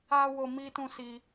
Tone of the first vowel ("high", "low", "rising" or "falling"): high